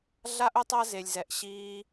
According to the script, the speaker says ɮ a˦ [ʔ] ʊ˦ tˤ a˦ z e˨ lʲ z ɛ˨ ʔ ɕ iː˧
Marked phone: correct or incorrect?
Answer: correct